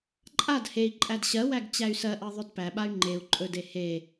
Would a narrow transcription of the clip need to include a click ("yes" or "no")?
yes